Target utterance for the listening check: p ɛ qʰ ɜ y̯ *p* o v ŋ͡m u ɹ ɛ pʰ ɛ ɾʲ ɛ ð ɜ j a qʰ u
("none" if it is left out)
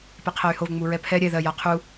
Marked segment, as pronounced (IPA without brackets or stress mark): h